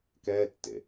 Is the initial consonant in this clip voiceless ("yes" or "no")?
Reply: yes